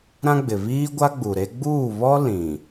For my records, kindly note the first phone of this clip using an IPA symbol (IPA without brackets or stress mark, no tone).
ɾ